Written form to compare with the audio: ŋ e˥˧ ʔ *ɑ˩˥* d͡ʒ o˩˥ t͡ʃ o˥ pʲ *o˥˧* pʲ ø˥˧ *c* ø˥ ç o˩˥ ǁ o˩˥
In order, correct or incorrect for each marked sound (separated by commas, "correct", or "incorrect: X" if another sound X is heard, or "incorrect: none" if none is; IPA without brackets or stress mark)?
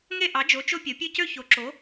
correct, incorrect: o˩˥, correct